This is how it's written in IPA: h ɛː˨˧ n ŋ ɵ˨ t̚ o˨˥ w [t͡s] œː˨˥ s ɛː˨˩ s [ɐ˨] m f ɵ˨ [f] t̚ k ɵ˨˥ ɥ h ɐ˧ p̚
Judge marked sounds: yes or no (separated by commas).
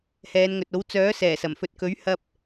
yes, no, no